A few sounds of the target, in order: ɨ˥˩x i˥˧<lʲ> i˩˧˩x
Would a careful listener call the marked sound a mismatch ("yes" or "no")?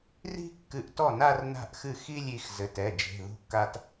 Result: no